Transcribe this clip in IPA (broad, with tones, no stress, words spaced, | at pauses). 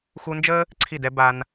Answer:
xu˧nd͡ʒəː˦ | ǀʰi˦˨dɛ˦ ba˧n